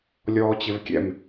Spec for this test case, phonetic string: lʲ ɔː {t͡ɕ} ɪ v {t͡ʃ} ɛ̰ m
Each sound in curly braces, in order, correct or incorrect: correct, incorrect: kʲ

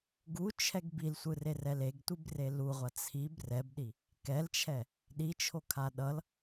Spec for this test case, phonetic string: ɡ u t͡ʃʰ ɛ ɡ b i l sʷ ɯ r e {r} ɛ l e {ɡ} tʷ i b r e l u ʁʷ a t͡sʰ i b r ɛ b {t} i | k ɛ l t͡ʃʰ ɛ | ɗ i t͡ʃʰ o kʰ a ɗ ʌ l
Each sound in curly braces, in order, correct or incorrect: correct, correct, incorrect: ɗ

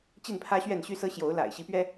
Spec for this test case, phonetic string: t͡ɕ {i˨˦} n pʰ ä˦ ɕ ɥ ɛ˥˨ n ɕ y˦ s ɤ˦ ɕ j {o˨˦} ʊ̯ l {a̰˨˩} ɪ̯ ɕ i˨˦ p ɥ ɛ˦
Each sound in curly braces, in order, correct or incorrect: incorrect: i˥˨, correct, correct

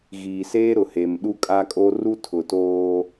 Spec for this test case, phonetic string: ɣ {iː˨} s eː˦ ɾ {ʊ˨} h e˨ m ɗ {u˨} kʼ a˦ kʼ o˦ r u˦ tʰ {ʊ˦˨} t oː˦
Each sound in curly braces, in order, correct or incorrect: correct, correct, incorrect: u˦, incorrect: ʊ˨

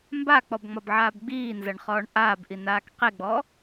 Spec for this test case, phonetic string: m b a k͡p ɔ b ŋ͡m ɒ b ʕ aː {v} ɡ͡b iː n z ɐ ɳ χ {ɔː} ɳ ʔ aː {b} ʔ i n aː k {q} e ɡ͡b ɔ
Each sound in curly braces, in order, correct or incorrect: incorrect: b, correct, correct, correct

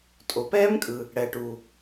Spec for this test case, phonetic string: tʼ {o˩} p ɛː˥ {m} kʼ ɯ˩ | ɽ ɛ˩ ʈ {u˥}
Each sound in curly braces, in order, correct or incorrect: correct, correct, incorrect: u˩

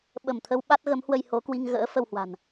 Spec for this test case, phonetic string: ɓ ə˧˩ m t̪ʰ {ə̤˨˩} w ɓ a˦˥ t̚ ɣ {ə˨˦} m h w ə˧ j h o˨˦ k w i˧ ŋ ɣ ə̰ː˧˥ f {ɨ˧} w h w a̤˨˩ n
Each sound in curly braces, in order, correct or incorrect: incorrect: ə˧, correct, incorrect: ə˧

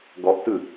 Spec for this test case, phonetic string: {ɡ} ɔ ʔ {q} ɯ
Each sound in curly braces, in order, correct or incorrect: correct, incorrect: t

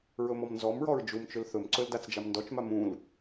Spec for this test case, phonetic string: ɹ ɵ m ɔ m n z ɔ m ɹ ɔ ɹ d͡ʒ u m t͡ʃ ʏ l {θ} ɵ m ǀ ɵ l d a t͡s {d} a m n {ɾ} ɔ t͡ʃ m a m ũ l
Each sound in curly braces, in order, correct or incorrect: correct, incorrect: d͡ʒ, incorrect: d

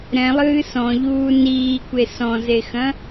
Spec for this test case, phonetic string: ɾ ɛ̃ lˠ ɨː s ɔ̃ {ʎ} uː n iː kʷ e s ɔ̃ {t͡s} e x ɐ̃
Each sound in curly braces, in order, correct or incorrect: correct, incorrect: z

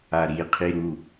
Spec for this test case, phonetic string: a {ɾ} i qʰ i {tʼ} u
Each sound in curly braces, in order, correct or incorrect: correct, incorrect: ɾ

